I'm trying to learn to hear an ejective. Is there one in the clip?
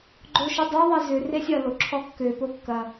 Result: no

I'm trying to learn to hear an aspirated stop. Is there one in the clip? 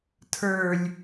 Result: yes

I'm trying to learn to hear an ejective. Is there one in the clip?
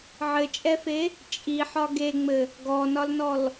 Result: yes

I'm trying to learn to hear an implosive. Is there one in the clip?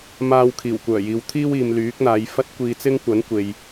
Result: no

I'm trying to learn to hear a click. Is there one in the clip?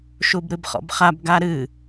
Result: no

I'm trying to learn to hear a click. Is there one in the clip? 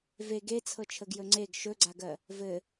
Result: yes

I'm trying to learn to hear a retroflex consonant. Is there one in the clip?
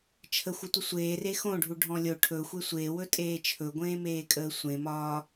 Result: yes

